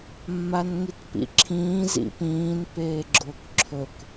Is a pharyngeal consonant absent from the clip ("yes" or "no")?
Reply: yes